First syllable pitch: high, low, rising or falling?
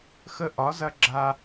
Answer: high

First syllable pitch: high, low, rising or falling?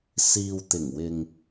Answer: low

